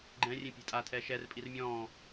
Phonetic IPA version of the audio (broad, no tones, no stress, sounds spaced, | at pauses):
ɡ͡ǃ ɛ̃ rʲ ẽ pʲ e̤ tʼ a tʰ ɛ ʃ ɛ r pʼ i r mʲ ɔ̃